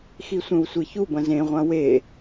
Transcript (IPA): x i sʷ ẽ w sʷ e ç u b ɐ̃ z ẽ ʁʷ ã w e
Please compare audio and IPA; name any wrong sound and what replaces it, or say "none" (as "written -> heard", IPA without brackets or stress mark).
none